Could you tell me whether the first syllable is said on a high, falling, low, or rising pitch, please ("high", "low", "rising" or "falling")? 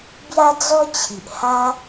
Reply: high